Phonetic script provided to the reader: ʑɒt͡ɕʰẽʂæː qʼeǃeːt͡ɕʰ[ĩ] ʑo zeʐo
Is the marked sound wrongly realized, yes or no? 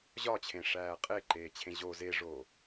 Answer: yes